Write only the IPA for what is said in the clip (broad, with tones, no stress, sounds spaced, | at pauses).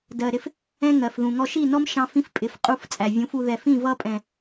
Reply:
d ɜ˨ ɾ ɪ˧ f | ɛ̃˦ ŋ ɜ˨ f ð ũ˨ ŋ ɔ˧ ʃ i˦˨ n ɔ˦ m ʃ ɑ̃˦ f ĩ˦ f pʼ ɪ˨˦ f qʼ u˦˨ f t͡sʼ æ˨ vʲ ũ˨˦ f u˧ ð ɛ˨ f ĩ˦˨ v ʌ˦ pʼ ɛ̃˨